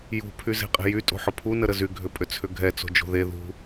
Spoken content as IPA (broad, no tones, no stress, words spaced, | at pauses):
jṳ pʰyze̤qʼe̤jy tʼo̤ħʊpʰu nəɾəzy ɡʱʏpʼʏt͡sʰʏɡʱɛ t͡so̤d͡ʒo̤ðe ðṳ